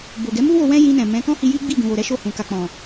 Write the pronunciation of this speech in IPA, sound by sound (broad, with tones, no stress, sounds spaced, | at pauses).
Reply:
b o˨ ɡ ɛ˨˦ m u˦ w o˧ w ɛ̃˦ j ĩ˧ n ɛ̃˨ m ɛ̃˨˦ k ɔ̃˦ h i˧ j i˦ ɡ͡b i˦˨ ɡ ũ˨ w o˨ ɾ ɛ˨˦ ʃ o˦˨ h ũ˨ k a˨ k͡p ɔ̃˨